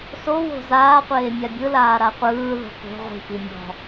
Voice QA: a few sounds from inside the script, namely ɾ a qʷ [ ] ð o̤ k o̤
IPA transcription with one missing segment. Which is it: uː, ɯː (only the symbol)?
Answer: ɯː